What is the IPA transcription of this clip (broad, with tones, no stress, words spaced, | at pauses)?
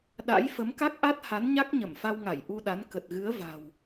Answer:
ɗa̰˧˥j fə˨˦mka˦˥k̚ʔa˦˥t̚ha˨˦n ɲa˦˥k̚ɲə˧˩mfa˧wŋa˧˩j ʔu˧ɗa˨˦n kə˨˩t̚ɣɨ˨˦ə̯ va̤˨˩w